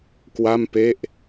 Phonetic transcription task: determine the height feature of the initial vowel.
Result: low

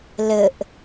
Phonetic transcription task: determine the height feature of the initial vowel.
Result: mid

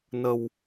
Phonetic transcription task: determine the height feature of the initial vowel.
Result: mid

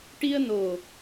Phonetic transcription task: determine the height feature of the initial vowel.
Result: high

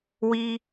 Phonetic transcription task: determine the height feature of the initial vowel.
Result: high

